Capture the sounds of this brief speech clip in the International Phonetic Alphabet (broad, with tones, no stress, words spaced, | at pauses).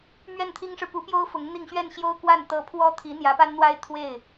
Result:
mɥɛ˥˩nt̪ʰi˥ŋʂɻ̩˨ pu˧˥pjo˥ʊ̯ fʊ˧˥ŋn̪i˥˧ŋ ɕɥɛ˥˩nɕjo˥ʊ̯kwa˥˩n t̪ɤ˧˥pʰwɔ˥t̪ʰi˧˥ n̪jä˧˥pa˥nn̪wa˥ɪ̯t̪ʰwe˥˩ɪ̯